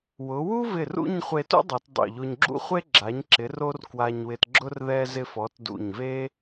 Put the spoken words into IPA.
w ʊ˩˧ w u˥ v ɪ˧˩ r ṵ˥˧ ɲ χʷ e˧ t ṵ˥ dˤ o˩˧ t dˤ ṵ˧˩ ʎ o˧ ɲ ɡ͡ǁ ṵ˥ χʷ e˥ ɡ͡ǁ a˩˧ ɲ ǁ ɪ˩˧ r o˧ r k w a˧ ɲ w ɪ˧ t ɡ͡ǁ ʊ˥ r ð ɛ˧ z ɪ˧ f ɔ˩˧ t d ṵ˧˩ ɲ v e˥

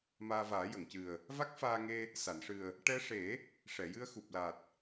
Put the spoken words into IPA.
m aː˧ v aː˨˩˦ j ə˨˩˨ ŋ c ɨ˨˩ ə̯ | v a˦˥ k̚ f aː˧ ŋ e˧ | s a˨˩˨ n ʂ ɨ˨˩ ə̯ | ʈ ɛ˧ ʂ e˨˩˦ | ʂ ɛ˨˩˨ j ɨ˧ ə̯ x u˨˩ p̚ l a˨˩ t̚

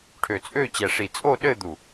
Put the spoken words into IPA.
ʈʰ ø˧˩ t͡sʼ ø˥˧ t͡ɕ ɛ˧˩ ʂ i˧˩ t͡sʼ o˥˧ ɗ ɘ˥˧ d̪ u˧˩

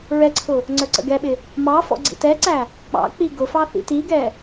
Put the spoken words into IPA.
ɹ ɛ ǀʰ ʊ | ŋ͡ǀ ə˞ ǀ ə̰ ɡ ɛ ɓ ɪ | m ɑ f ɔ̰ ɡ͡ǀ ḭ t ɛ ǀ æ | k͡p ɑ̰ k͡p i ɡ ʊ f ɑ θ ḭ t i ɡ ɛ

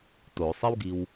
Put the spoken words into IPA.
t o sˤ i w ɡ i w

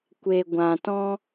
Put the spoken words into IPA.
kʷ e˨ ɡʷ ã˨ t ɔ̃˦

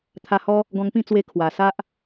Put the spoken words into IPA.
t̪ʰ a˧ h ɔ˦ | ɡ ɔ̃˧ ŋ p ĩ˥˧ t͡s w e˧ kʰ w a˨˩ s a˦ ʔ

